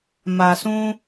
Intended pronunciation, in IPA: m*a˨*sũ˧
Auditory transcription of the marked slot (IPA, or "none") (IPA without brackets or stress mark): a˨